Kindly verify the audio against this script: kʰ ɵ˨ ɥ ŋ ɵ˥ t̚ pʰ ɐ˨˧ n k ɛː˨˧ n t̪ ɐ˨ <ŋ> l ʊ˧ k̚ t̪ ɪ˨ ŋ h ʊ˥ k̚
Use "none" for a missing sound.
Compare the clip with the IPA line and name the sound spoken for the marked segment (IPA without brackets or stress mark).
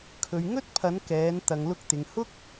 ŋ